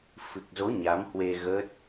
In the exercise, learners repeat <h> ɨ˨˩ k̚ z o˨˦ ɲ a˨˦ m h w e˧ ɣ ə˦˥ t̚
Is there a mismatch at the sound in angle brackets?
yes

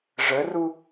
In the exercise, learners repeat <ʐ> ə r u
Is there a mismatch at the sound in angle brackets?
no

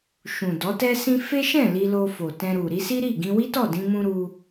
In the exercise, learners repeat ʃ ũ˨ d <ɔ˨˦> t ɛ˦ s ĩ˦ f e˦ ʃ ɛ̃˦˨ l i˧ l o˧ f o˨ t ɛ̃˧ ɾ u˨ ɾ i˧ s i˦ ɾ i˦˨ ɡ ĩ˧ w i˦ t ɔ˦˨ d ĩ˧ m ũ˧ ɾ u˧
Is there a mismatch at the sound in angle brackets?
no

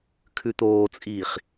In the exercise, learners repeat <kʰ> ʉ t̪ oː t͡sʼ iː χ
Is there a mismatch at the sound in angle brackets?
no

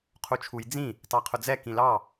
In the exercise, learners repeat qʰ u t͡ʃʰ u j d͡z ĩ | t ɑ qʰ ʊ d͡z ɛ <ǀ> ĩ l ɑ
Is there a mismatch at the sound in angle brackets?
yes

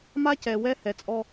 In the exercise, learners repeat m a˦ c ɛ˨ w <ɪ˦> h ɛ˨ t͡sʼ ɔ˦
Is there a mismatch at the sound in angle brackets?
yes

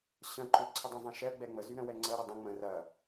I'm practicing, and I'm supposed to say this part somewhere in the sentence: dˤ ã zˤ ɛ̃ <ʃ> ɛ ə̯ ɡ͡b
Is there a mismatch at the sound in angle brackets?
no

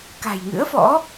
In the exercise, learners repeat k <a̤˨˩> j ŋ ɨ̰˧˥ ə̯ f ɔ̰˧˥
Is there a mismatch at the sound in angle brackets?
no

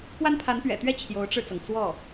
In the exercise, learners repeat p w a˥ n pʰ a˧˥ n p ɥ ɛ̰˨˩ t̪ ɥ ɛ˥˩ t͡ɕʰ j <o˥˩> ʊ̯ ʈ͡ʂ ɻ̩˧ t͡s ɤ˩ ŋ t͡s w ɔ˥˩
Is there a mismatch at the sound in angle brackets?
yes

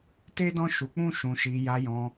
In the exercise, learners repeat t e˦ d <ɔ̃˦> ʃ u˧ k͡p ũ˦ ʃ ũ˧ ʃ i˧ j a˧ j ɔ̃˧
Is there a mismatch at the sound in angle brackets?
no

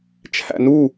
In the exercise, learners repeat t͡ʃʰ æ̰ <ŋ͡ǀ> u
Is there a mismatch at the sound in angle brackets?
yes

